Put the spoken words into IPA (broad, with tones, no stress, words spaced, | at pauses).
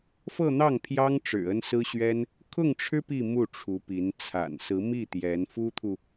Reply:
fɤ˥˧n̪ɑ˥˩ŋpʰjɑ˥ŋ ʈ͡ʂɻ̩˨˩ ə˥nsɹ̩˥ɕɥɛ˥n | kʰʊ˥˩ŋʈ͡ʂʰɻ̩˥ pi˥˧ mu˥˩ʈ͡ʂʰu˧˥pi˧˥n t͡sʰa̰˨˩nsɹ̩˧˥mi˥˩ t̪jɛ˧˥nfu˥t̪ʰu˨